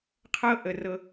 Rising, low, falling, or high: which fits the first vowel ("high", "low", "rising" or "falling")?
high